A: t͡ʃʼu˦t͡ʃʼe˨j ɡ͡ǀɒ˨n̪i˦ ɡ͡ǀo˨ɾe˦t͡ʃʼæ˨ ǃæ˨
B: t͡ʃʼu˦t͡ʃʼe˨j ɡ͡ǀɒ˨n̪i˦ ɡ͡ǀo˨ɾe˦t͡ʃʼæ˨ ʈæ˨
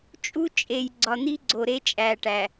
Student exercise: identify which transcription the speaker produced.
B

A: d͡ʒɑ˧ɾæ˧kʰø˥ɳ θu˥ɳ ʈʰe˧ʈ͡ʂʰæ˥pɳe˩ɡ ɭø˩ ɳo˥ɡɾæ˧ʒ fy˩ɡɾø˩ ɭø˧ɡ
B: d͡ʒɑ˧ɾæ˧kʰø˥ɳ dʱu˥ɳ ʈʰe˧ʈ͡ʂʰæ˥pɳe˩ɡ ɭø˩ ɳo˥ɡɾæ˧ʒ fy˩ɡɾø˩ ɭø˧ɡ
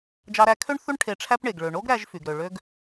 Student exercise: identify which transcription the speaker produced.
A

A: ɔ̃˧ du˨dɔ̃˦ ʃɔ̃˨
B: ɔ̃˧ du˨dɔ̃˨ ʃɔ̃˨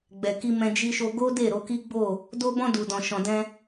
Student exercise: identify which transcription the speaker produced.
B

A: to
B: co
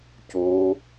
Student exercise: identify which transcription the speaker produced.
B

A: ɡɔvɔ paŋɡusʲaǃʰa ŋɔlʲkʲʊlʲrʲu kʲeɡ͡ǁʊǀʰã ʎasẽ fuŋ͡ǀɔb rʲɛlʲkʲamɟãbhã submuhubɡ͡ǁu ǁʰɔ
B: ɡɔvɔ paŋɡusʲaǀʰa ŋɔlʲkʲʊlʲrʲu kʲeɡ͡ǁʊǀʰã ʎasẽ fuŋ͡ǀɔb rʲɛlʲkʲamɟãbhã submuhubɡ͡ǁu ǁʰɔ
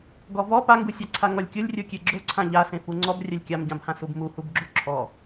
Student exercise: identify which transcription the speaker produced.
B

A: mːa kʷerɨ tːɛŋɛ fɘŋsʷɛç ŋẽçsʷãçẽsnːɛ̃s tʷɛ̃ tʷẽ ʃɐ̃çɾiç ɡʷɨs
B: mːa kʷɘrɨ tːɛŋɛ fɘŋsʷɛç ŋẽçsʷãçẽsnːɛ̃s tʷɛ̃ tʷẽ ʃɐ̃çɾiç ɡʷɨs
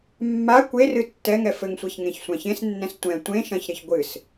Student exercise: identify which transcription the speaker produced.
A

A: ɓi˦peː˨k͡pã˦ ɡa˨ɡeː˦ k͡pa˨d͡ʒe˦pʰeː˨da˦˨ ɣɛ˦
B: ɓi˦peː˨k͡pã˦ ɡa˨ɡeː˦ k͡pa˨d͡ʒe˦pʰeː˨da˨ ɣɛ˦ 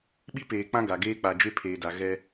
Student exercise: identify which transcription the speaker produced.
B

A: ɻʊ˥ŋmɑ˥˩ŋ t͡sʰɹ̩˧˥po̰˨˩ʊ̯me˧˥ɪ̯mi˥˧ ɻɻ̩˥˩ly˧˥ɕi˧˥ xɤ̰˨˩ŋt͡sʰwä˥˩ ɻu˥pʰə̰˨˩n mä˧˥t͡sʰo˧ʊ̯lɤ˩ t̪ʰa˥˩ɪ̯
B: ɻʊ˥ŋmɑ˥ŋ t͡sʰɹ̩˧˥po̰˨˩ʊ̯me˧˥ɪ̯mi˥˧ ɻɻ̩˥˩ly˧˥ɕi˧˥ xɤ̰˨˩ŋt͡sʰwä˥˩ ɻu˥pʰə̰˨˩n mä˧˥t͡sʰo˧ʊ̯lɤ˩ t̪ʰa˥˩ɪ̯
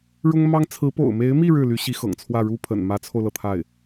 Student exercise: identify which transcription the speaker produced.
B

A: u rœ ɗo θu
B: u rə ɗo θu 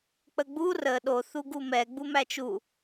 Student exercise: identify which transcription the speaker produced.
B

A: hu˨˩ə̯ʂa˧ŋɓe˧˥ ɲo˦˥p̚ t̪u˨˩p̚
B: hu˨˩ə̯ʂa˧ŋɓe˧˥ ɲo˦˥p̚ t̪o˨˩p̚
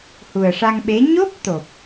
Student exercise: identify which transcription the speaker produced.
B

